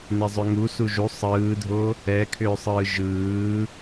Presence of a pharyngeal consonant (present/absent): absent